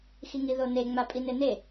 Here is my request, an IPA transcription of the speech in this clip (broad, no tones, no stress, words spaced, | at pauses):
xiŋiðone ŋ͡mapʼinene